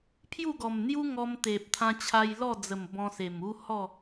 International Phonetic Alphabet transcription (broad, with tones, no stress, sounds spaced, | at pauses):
pʰ j u˥˧ ɡ ɔ˨˩ m n̪ j u˦ ŋ ɔ˧ m t̪ e˨ p̚ t̪ʰ ã˧ t͡ɕʰ a˧ j l ɔ˥˧ d͡z ə˨˩ m b ɔ̃˧ s e˨˩ m u˦ h ɔ˥˧